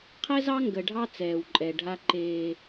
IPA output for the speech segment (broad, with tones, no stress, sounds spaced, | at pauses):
qʰ ɛ˦ z ɑ˦ ŋ ɡ ə˨ ɖʱ ɑ˦ t͡s ɛː˨ w ǃʼ ɛ˨ ɖʱ a˦ ǃ eː˦